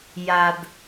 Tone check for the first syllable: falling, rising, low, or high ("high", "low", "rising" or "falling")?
low